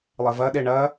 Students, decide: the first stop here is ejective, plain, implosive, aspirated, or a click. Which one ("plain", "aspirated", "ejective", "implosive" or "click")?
implosive